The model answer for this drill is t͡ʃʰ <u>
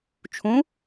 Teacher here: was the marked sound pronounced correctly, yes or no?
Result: no